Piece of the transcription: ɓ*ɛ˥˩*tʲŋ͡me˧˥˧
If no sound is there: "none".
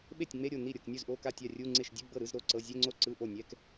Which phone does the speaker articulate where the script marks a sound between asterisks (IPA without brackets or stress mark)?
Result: e˥˩